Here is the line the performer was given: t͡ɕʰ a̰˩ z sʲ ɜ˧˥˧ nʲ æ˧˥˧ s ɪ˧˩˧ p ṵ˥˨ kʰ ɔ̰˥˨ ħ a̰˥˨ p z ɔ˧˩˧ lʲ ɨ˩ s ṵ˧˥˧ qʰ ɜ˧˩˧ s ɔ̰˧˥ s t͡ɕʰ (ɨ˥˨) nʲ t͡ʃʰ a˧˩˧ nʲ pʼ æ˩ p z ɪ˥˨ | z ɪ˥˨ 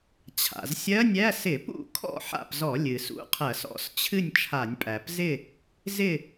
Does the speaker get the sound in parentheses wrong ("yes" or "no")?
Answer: no